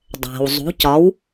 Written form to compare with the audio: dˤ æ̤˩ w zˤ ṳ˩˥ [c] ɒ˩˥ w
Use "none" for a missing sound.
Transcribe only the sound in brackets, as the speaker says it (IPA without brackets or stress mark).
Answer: c